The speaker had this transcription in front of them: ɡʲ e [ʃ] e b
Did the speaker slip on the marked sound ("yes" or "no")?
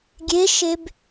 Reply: no